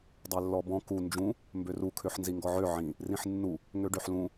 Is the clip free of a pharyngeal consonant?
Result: no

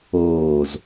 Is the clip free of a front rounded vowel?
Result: yes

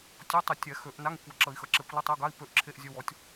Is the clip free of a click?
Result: no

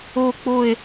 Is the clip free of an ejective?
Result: yes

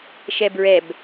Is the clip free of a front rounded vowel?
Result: yes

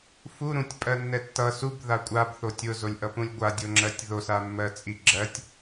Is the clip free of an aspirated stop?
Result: yes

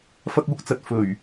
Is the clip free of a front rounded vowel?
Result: yes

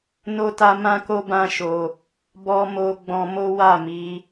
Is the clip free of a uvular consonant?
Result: yes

